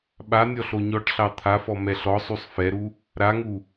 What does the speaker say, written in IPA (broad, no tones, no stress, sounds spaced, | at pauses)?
ɓ a nʲ ɔ ɬ o ɲ ɔ ʈ ɬ ɑ t̪ʰ a f ɔ m ɛ ɬ ɔ sˤ u sˤ f ɛ ɾ u | ɾ a ŋ u